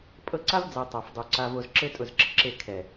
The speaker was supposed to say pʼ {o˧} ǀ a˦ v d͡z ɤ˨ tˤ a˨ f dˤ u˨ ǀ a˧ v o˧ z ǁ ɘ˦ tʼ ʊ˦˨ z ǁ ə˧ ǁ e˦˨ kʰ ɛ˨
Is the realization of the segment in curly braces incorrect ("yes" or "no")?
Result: yes